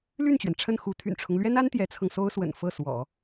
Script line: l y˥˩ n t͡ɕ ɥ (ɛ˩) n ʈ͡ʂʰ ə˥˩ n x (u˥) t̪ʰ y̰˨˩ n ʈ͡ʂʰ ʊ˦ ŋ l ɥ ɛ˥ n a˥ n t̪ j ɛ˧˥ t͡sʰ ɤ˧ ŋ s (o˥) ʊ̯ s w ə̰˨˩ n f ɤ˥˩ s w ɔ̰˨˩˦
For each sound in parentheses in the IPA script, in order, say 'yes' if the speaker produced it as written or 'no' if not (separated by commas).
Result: yes, no, yes